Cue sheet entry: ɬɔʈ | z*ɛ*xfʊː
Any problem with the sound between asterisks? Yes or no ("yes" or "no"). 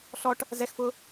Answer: no